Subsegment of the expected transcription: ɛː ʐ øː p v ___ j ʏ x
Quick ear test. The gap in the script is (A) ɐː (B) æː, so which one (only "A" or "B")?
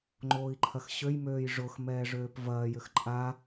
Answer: A